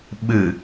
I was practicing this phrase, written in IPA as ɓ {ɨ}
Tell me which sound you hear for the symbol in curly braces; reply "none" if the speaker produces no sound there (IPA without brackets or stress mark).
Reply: ɨ